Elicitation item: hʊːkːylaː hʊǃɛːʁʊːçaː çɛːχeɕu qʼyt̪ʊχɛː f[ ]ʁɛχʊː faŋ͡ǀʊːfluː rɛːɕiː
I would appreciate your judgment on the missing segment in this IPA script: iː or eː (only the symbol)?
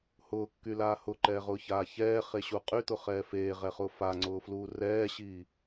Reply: eː